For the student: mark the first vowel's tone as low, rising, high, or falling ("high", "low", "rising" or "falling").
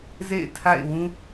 falling